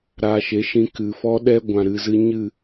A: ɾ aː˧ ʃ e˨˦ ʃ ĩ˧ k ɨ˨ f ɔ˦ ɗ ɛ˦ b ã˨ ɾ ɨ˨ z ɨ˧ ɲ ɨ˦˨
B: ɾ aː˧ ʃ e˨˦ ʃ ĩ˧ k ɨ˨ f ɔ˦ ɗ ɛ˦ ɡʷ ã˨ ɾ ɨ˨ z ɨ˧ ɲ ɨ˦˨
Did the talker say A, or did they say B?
B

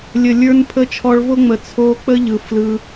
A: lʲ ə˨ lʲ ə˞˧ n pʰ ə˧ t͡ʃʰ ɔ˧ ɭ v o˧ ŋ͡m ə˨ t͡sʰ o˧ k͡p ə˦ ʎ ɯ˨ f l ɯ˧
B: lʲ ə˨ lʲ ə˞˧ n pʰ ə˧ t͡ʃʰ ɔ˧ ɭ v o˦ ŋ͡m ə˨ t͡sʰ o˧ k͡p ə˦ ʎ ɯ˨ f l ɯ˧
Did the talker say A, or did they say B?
B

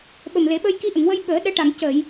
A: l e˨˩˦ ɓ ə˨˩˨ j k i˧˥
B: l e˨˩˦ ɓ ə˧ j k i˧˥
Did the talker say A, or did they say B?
B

